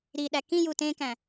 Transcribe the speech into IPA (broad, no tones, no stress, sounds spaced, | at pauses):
ɾ i ɗ æ k ĩ j u t ẽ k æ̃